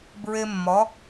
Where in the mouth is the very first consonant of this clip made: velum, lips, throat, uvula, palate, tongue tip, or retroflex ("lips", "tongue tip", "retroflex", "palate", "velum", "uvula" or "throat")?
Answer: lips